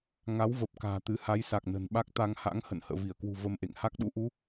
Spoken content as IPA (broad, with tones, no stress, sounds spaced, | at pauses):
ŋ a˨˦ w v ə˨˩ p̚ k a̤ː˨˩ t̪ ɨ˨˦ h a˨˦ j s a˨˩ k̚ n ə̤˨˩ n ɓ a˦˥ k̚ t̪ a˧ ŋ h a̰˧˥ ŋ h ə̰˧˨ n h ə̰ː˧˨ v i˧˩ ə̯ k w ṳ˨˩ v ə˧ m ʔ ḛ˧˨ ŋ h a˦˥ k̚ ɗ ṵ˧˥ ʔ u˨˦